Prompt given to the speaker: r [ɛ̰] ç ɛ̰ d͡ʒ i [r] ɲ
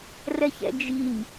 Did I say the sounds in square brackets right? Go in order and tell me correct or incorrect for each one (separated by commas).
incorrect, incorrect